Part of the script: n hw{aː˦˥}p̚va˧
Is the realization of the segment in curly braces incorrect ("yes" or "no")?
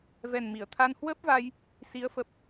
yes